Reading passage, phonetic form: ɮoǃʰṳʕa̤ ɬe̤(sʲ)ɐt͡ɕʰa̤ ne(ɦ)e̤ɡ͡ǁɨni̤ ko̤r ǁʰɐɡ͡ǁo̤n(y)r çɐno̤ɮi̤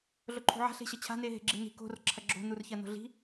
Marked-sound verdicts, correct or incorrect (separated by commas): incorrect, correct, incorrect